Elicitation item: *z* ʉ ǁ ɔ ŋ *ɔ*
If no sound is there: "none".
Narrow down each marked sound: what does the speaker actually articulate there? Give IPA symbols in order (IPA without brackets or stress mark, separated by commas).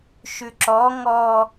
ʃ, ɔ